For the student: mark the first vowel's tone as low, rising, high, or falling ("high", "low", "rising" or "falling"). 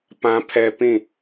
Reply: high